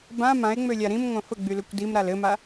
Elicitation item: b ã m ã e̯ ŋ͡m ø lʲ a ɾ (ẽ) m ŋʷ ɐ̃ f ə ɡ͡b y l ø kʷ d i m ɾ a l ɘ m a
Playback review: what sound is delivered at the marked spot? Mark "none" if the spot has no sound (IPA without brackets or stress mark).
ĩ